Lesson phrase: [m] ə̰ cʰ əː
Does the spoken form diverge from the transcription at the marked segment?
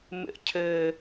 no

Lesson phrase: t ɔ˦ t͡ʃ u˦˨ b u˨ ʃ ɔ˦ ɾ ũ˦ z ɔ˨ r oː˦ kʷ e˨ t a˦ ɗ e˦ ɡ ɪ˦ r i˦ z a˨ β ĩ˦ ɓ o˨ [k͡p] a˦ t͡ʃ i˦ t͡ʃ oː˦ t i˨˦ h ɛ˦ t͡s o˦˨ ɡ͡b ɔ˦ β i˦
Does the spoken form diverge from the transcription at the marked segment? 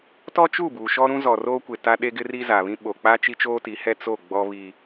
no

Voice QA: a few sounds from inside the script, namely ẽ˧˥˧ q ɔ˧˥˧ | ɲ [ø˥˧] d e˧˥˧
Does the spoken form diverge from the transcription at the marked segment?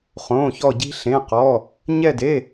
yes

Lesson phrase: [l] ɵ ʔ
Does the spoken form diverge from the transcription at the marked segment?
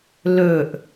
no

